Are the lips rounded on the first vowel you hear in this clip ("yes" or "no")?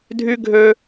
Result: yes